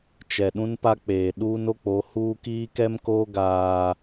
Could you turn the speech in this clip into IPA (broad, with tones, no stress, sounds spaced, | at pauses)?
t͡ʃ ɛ˨ ɗ ũ˦ n p a˦ k͡p eː˨ ɗ uː˦ n o˦ k͡p o˨˦ h uː˦ k iː˦ k ɛ˦ m k oː˦ ɡ aː˦